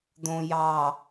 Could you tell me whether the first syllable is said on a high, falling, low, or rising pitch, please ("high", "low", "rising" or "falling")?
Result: low